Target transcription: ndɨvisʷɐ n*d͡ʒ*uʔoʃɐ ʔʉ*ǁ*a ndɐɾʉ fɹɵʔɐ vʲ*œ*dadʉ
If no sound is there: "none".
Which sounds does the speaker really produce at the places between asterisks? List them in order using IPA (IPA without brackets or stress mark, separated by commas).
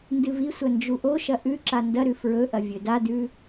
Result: d͡ʒ, ǁ, ɵ